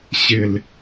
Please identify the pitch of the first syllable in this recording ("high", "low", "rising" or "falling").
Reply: low